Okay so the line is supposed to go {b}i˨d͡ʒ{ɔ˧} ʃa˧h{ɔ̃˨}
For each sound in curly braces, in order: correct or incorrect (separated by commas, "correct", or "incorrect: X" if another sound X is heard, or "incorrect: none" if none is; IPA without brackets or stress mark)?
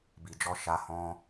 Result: correct, correct, incorrect: ɔ̃˦